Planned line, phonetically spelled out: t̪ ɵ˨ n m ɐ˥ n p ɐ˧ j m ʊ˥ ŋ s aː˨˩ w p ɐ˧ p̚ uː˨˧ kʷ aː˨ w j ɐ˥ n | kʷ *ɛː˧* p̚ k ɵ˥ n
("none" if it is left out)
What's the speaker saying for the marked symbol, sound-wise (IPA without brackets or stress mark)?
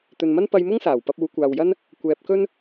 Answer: ɛː˧